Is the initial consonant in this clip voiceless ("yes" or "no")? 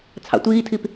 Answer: yes